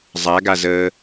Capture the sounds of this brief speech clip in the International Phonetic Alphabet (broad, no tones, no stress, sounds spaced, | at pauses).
zˤ a ɡ a z əː